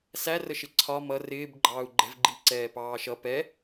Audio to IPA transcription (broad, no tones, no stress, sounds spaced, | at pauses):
s æ r ə ʃ ɪ ǀʰ ɒ m ʌ r ɪː b ɡ͡ǃ ɑː u̯ ɡ͡ǃ ɛ̤ v ɡ͡ǃ i ǀ ɛː p ɑː ʃ ʌ p ɛ